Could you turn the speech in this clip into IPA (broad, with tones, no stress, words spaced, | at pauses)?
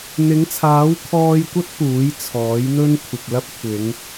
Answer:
n̪ɪ˨˥ŋt͡sʰaː˨˥w kʰɔː˧jkʷɐ˥t̚ puː˨˥jt͡sʰɔː˨˥jn̪ɵ˥n kʷʰɪ˨k̚lɐ˥p̚ kʷʰɪ˨˧ŋ